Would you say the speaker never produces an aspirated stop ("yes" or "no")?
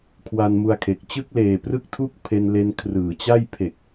no